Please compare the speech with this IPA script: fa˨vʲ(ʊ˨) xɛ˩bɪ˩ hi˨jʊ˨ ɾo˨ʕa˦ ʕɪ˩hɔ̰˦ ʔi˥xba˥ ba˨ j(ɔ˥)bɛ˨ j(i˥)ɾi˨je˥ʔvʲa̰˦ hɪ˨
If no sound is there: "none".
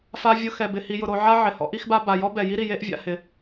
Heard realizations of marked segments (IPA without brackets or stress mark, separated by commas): ʊ˨, ɔ˥, i˥